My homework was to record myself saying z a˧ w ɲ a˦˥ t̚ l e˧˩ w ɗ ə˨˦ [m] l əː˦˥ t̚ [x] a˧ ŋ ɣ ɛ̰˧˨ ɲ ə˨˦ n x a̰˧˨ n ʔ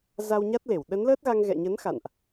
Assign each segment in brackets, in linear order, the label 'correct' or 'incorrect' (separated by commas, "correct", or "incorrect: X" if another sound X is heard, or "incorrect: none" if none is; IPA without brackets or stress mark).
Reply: incorrect: n, incorrect: ɣ